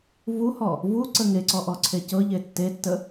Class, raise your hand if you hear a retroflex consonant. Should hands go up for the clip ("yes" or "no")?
no